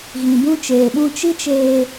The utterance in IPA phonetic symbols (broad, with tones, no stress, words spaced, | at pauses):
ɣĩ˨bũ˧t͡ʃeː˨ɓũ˧ t͡ʃi˦t͡ʃeː˧